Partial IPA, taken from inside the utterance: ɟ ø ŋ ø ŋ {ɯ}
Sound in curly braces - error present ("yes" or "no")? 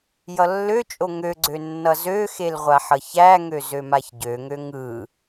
no